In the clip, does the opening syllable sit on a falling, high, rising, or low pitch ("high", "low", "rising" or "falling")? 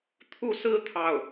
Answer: falling